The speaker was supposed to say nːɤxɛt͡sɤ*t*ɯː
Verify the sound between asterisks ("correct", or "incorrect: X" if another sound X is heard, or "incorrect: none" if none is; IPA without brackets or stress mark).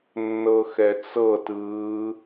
correct